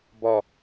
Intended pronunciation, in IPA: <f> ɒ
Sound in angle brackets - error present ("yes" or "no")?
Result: yes